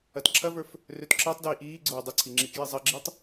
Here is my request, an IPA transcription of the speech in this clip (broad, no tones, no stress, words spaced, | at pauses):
ɐtǁʰɐvə˞f | røtǁəːtˤdiː ʔiː ɡ͡ǀoːdˤəǀʰi ŋ͡ǁikjizˤɐɡ͡ǁitˤ